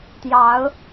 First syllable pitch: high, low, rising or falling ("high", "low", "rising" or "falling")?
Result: rising